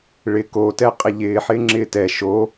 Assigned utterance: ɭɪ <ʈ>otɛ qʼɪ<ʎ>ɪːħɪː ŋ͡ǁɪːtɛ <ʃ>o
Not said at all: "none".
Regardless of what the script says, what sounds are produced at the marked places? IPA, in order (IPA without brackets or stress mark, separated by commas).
k, ʎ, ʃ